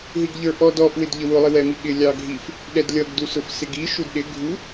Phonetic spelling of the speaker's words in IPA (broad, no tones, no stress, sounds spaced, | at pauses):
ɦ i ɡ ʎ ə˞ ʔ ɔ d ɔ ʔ w ɪ d ʎ ə w ʊ lˠ ɪ w ɛ m i ɠ ɪ lʲ ɑ ɡʱ i f | ɗ ɛ d lʲ ʌ ɡ d u s ʊ f s ɪ ɡ i ʃ u d ɗ ɪ ɡʱ u